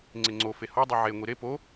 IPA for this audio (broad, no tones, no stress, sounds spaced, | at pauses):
ŋ͡ǀ e ŋ͡ǀ o f e h ɔ dˤ i ʕ e ŋʷ i ɾ e p o